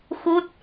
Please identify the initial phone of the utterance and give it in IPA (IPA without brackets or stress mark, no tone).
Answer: x